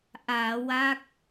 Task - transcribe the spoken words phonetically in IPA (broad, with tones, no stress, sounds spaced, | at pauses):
ʔ aː˩˦ w a˦˥ k̚